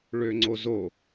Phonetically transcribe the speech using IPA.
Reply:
ɭ ø ŋ͡ǀ o z o

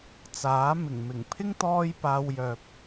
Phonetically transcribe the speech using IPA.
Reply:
t͡s aː˨˥ m ɪ˨˩ ŋ m ɪ˨˩ ŋ pʰ ɪ˥ ŋ t̪ ɔː˥ j p aː˧ w j œː˨ p̚

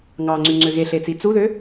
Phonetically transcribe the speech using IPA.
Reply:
ŋ ɑ ŋ͡ǀ y ŋ͡ǀ ø ɣ e ɬ e t͡s i t͡s u ð ø

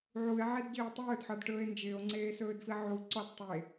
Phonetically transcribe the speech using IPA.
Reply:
ʕ u e̯ ʕ e d ɟ ɪː o̯ tˤ ɵː d ħ ɔ d ʈ ɵː e̯ n d͡ʒ ɪː o̯ ŋ͡ǀ eː s ɵː d f i ʕ u ǀ ɔ d tˤ e

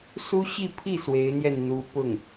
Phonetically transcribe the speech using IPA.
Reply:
s u˥ ɕ i˥˧ pʰ i˥˩ s w e˧˥ ɪ̯ n̪ j ɛ˥˩ n n̪ u˧˥ p ʊ˥˩ ŋ

